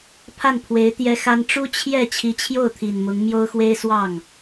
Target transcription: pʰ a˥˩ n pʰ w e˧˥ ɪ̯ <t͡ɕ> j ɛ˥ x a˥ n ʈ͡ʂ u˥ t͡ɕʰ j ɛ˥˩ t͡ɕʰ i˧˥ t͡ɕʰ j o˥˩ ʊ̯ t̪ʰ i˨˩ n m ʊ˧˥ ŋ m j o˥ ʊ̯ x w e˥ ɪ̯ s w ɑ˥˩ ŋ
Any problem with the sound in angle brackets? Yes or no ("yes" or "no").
yes